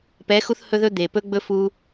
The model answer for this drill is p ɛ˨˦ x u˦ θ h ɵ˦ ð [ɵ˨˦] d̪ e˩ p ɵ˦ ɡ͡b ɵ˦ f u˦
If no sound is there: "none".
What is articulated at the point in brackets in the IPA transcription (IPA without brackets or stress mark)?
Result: ɵ˦